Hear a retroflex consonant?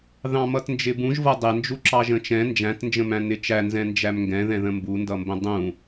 no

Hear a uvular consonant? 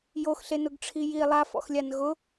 no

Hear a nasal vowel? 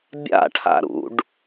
no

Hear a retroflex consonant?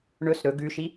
yes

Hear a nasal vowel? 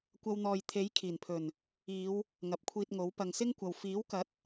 no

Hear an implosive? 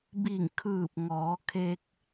no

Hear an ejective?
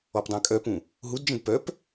yes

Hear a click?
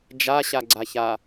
yes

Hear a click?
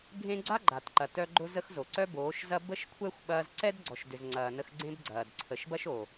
yes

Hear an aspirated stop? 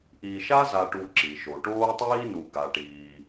no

